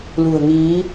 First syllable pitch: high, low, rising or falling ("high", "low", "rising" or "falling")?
low